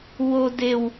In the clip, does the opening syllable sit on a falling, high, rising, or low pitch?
high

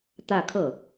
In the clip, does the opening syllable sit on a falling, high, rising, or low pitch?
falling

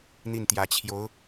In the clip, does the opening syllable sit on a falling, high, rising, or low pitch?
falling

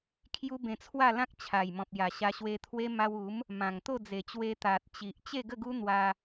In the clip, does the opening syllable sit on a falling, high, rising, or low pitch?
high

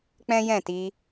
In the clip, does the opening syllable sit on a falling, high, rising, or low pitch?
high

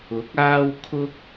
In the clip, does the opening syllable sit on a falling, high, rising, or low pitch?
rising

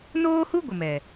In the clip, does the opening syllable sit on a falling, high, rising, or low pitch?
high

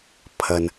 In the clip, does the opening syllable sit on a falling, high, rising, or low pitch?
low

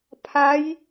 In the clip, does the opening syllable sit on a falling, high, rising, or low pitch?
rising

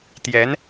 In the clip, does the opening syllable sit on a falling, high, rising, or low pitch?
rising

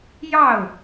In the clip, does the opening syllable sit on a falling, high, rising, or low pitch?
falling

